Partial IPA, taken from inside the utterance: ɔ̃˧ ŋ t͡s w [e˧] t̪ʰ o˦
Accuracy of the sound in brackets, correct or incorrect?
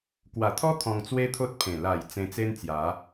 incorrect